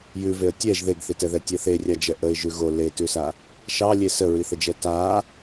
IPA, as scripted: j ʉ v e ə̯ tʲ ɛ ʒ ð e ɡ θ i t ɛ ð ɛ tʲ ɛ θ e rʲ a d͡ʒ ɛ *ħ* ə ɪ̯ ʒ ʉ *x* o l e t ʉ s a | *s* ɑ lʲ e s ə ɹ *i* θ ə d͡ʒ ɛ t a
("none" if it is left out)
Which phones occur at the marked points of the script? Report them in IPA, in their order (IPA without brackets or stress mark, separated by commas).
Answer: ʔ, ɣ, ʃ, i